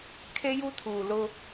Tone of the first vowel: high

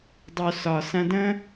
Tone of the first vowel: low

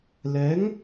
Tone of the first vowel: rising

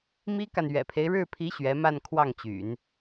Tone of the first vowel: high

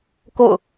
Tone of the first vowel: falling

